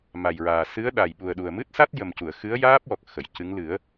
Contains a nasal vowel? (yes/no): no